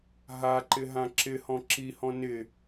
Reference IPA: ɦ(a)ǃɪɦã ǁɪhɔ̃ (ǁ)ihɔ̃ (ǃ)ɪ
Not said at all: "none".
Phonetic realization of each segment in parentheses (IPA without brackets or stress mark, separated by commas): a, ǁ, n